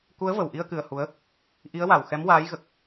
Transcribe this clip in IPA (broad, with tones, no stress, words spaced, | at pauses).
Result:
ku˧˥ə̯və˨˩wʔi˧ə̯ kɨ˧ə̯hu˧˥ə̯ | ʔi˧˥ə̯wa˨˩w xɛ˧˥mwaː˧˥jɣə˨˩k̚